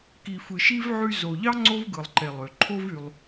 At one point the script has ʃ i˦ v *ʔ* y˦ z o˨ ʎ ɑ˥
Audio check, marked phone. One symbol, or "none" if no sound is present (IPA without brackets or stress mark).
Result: ʕ